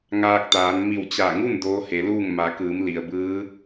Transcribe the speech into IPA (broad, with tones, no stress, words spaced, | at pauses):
ŋaː˧k̚t̪aː˩˧n mi˧˩wt͡ɕa˧˩ ŋu˥˨n doː˧˥he˩˧luː˥˨ŋ ma˩˧kɯː˩˧m li˩ə̯bɯː˧˥